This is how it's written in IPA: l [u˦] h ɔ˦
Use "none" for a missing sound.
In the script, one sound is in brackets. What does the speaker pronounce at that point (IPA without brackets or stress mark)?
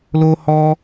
o˦